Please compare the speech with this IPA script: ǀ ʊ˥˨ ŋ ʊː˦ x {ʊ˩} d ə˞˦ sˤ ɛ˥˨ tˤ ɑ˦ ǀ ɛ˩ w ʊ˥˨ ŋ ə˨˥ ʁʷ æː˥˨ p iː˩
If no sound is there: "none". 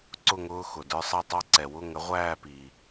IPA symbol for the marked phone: ʊ˩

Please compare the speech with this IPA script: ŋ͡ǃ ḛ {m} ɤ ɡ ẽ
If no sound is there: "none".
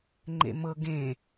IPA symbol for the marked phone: m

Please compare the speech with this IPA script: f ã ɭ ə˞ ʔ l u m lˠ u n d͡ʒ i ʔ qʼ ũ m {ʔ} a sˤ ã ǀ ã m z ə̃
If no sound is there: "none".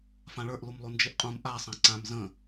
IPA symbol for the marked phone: ʔ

